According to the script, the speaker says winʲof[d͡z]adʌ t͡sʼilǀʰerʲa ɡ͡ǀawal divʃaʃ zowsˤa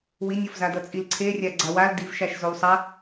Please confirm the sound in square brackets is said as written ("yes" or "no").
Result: no